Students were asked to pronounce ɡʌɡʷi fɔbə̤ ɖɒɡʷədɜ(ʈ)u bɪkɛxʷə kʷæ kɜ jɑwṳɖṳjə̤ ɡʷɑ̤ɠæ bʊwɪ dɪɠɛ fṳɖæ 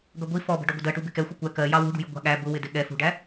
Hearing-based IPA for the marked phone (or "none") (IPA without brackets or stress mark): ʈ